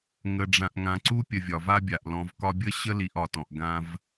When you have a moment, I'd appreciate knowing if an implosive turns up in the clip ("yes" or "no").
no